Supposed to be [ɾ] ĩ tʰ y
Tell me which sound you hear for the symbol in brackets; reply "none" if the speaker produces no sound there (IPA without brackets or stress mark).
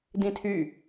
d